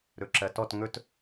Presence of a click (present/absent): present